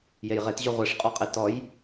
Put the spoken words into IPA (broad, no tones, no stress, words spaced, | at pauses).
jejʁetʑʉ ʁʷeʂqʼɔqʼe tɔj